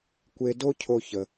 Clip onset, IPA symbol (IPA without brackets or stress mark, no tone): kʷ